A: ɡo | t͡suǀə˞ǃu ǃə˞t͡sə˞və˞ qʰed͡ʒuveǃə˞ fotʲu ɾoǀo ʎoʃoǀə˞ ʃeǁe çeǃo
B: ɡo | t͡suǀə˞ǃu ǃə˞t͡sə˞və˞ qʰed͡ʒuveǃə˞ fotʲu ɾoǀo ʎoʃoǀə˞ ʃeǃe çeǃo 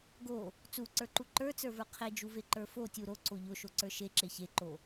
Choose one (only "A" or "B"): A